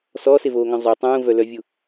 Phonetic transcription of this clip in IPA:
s ɔː s e v oː ŋ œ̃ zˤ ø tˤ ũː v œ l œ vʲ u

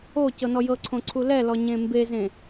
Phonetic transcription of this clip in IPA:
o c ɤ n ɔ j ɤ ǀʰ õ ǀʰ u l ɛ l ɔ ɲ ẽ m b e z ẽ

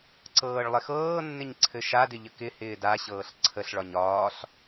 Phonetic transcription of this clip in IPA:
ǀ ɤː ɭ lˠ ɪ x ɤː nː ɪ ɲ ǀʰ ɘ ʃ a d ɪ ʎ ə k ɪ h ɪː d a ɕ ɤː ɬ ǀʰ ə ɬ ɭ ɒ ɲ ɒː ɬ

